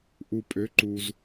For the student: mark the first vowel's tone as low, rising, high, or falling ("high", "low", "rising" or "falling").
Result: low